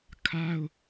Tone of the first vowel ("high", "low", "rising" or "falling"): high